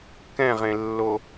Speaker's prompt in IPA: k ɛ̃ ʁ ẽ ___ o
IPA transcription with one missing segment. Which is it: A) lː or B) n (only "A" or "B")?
A